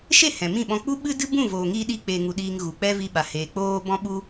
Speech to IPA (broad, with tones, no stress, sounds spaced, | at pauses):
ʃ e˦˨ h ɛ̃˨ m ĩ˦˨ ɓ ɔ̃˧ k͡p u˦ ɓ ɨ˦ d ɨ˦ b ũ˦˨ v oː˨ ŋ i˧ ɗ iː˦ k͡p eː˧ ŋ u˧ ɗ iː˧ ŋ ɣ u˨ k͡p ɛ˦ v i˧ ɓ a˨ h eː˨ k͡p oː˧ b ɔ̃˧ ɓ u˧